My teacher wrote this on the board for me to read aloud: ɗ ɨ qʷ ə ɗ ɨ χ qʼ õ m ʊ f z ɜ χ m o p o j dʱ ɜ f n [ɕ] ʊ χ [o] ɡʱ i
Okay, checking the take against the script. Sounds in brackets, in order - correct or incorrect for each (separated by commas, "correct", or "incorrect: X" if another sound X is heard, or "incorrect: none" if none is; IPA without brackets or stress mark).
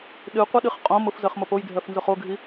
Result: incorrect: z, correct